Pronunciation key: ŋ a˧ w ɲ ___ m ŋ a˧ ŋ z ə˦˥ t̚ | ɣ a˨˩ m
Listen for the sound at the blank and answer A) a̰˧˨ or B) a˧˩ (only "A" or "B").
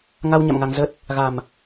A